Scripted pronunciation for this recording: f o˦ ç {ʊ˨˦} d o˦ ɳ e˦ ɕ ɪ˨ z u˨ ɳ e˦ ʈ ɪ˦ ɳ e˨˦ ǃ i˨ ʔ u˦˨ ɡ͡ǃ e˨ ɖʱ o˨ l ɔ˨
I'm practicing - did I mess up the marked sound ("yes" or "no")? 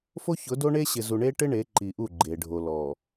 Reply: no